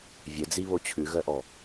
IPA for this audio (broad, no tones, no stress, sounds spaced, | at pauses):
vʲ ɘ d͡z i β o t͡ɕʰ ʉ ɣ œ ʔ ɔ